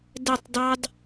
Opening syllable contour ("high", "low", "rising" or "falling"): falling